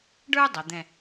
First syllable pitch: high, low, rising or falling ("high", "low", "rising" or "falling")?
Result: high